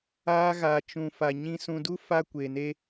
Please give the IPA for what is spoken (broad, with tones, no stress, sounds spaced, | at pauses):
aː˦ ɣ aː˧ t͡ʃ ũ˧ f a˧ ɲ ĩ˧ s ũ˧ d u˦ f a˦ kʷ e˧ n e˦